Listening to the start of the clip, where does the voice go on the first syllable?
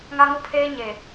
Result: high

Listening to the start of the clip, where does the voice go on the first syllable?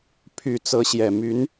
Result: low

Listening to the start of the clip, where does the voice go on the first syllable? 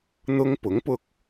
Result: high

